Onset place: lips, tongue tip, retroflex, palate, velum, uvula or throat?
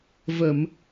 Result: lips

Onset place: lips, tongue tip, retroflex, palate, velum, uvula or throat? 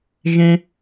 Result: velum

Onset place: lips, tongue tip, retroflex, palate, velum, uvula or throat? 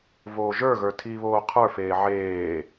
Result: lips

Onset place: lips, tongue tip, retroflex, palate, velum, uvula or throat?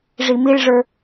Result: retroflex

